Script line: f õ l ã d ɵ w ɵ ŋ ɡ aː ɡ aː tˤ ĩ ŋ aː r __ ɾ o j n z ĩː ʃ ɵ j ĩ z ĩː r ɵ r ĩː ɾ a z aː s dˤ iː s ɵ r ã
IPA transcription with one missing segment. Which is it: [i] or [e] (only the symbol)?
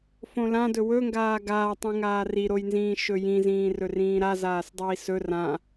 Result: i